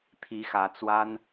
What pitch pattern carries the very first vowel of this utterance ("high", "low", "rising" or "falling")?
rising